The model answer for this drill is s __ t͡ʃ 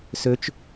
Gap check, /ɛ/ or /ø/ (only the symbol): ø